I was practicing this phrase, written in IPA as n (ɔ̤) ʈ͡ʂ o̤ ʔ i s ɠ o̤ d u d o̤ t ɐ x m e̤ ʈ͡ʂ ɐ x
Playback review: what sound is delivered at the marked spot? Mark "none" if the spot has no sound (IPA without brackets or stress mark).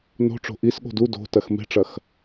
o̤